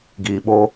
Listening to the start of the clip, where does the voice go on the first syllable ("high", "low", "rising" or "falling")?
low